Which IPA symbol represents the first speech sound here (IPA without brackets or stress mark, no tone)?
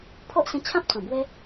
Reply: pʰ